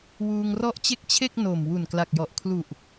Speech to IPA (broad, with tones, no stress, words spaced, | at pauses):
wuː˧ŋrɔ˦˥ʔt͡ɕe˦˥k̚t͡ɕʰe˥˩k̚ no˨˩m wu˨˩nkla˨˩k̚jɔ˨˩ʔ kʰlu˨˩ʔ